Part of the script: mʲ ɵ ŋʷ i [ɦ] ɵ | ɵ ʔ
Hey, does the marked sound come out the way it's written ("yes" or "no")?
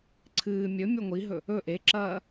yes